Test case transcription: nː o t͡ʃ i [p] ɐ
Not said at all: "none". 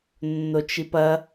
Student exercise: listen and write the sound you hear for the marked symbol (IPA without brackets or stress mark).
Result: p